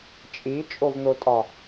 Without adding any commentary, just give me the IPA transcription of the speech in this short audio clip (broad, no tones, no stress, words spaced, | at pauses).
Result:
t͡ʃʼit͡ʃʼovn̪otʼɒ